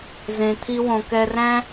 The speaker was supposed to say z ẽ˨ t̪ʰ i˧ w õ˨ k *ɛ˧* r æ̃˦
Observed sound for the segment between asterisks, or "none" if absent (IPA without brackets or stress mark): ɛ˧